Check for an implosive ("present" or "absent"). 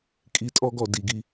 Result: absent